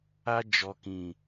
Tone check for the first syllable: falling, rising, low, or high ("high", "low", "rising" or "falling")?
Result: high